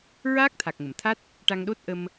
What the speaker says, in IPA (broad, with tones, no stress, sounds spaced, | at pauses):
ɹ aː˦˥ k̚ t̪ʰ a˨˩ k̚ ŋ ə˨˩˨ m t̪ʰ a˦˥ t̚ | ʈ a˧ ŋ ɗ o˦˥ t̚ ʔ ə˧ m